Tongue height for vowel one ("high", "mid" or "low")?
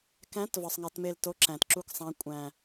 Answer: low